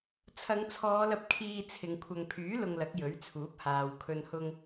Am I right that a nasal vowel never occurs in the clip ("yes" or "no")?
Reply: yes